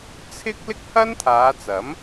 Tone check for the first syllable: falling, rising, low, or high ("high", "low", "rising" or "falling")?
high